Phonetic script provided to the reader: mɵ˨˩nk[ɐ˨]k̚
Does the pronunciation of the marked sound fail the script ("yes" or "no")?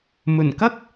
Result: yes